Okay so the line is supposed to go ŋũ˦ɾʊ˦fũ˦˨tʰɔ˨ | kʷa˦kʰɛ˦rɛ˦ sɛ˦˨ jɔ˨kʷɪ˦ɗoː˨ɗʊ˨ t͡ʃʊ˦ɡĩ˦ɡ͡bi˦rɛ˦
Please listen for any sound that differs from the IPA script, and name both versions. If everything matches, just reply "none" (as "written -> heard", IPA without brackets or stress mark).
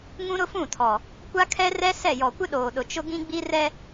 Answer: none